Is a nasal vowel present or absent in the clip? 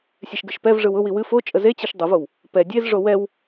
absent